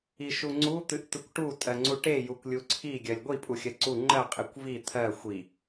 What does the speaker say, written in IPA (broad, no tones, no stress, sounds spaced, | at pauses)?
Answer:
i ʃ u ŋ͡ǀ u t̪ ɨ ʔ t̪ ɨ kʷ ʈ u tʼ ɜ ŋ͡ǀ u ʈ e j u kʷ lʲ u ǀʰ i ɡʲ ɜ lʲ ɡʷ i pʼ u xʲ ɜ ǀ u ŋ͡ǃ ɜ qʼ i kʷ v i t̪ʰ ɜ xʷ i